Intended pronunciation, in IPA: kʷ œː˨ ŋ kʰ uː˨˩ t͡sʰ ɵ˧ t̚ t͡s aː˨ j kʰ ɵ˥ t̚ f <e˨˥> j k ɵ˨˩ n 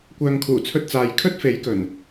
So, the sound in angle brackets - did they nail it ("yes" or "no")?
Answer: yes